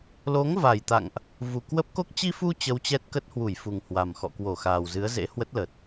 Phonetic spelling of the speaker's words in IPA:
lo˨˦ŋva˨˩jt̪a̰˧˨ŋʔ | vu˨˩kwə˦˥p̚ko˦˥k̚ t͡ɕi˧fu˧ t͡ɕə˧wt͡ɕɛ˦˥t̚kə˦˥t̚hwu˧˩j fu˨˩ŋhwa˨˩mxɔ̰˧˨kwo˧˩ xaː˨˩wzɨ˨˦ə̯zḛ˧˥ hwə˦˥t̚lə˨˩t̚

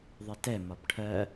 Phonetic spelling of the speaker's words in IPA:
ðˤɪtɛ mɒbʈʰɜ

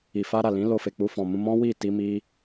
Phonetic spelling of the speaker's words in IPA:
i˨fa˧ ɾa˨lĩ˨˦lo˧fe˨ k͡pu˧fɔ̃˨mũ˧ mɔ̃˦wi˦˨ti˧ mi˦

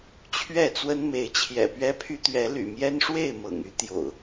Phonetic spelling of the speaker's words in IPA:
t͡ɕʰɥɛ˥˨t͡swə˦n me˨˦ɪ̯t͡ɕʰjɛ̰˨˩pɥɛ˦pʰy˦ t̪ɥɛ˨˦ly̰˨˩ mjɛ˦nʂwe˥˨ɪ̯ mɤ̰˨˩ŋy˦ t̪jo̰˨˩ʊ̯

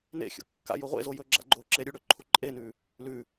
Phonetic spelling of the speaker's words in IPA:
nḛxʲo̰ kːa̰ joʁʷḛzo jɵɡ͡ǁa̰ ɡ͡ǃo ǁeɾʲʉɽɵ ǃʰuǃʼenʉ | lʉ

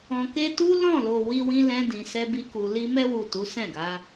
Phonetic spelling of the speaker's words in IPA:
ɔ̃˨ke˧tu˦ lɔ̃˦˨lo˨ wi˧wĩ˧lɛ̃˧ dĩ˨sɛ˧ bi˧ku˨li˧ mɛ˧wu˨ tu˨˦sɛ̃˦˨ɡa˨˦

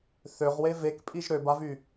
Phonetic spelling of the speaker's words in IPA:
θøʁwe vekpʼiʒ ɾøbavy

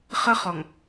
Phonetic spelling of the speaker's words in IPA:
χə˦χɔ˨ŋ

